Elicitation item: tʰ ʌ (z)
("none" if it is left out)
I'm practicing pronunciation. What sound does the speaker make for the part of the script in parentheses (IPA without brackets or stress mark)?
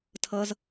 z